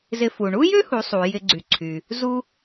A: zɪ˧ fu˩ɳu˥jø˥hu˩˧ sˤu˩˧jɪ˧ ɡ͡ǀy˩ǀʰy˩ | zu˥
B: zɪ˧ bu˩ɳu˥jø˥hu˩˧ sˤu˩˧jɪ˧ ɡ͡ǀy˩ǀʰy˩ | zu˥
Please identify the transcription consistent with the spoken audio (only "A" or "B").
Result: A